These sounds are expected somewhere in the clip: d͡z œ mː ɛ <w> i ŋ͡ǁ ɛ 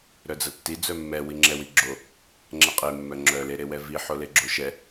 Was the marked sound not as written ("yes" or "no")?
no